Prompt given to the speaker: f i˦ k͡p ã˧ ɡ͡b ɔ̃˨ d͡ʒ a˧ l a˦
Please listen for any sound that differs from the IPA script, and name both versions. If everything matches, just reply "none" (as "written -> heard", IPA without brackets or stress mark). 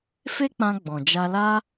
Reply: i˦ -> e˦